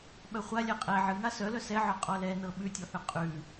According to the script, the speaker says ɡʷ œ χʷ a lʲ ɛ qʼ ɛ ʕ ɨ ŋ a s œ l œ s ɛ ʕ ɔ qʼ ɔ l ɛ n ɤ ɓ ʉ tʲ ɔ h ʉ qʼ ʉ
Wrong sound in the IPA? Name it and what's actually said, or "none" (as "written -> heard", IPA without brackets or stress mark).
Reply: ɡʷ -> ɓ